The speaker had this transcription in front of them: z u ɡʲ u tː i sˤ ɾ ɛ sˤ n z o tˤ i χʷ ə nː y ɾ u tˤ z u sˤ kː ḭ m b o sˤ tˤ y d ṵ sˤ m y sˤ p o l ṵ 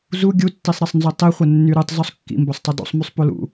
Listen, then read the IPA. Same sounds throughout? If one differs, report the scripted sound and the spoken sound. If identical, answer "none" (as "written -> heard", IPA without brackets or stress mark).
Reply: none